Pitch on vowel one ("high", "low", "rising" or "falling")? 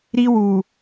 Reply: high